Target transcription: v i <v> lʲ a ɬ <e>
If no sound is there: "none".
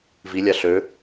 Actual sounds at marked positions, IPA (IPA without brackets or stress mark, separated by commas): none, ø